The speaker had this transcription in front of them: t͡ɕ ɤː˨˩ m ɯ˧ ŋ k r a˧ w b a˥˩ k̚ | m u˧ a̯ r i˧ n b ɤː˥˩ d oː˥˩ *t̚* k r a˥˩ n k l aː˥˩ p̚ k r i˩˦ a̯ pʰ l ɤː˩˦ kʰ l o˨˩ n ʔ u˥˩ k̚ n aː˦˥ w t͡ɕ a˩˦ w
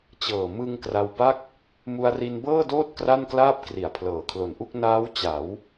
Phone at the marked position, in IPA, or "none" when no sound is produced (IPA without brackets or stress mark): t̚